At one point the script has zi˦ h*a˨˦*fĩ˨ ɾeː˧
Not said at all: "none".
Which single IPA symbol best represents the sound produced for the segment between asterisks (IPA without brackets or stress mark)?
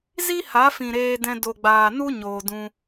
a˨˦